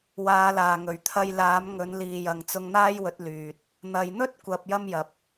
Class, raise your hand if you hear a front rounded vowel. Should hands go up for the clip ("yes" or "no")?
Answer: yes